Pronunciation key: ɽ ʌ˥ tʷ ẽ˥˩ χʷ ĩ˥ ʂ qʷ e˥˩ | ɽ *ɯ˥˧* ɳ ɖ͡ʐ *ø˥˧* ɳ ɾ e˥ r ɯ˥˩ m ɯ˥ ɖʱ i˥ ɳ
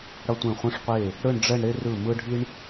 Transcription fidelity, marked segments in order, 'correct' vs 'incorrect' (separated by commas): correct, incorrect